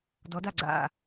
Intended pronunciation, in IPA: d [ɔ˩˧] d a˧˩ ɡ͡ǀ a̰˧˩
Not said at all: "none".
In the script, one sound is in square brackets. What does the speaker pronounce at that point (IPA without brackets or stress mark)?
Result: ɔ˩˧